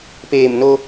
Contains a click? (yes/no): no